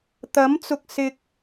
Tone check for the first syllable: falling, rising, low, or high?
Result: rising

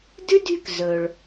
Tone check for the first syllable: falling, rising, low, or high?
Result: high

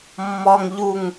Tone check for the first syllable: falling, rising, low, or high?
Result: high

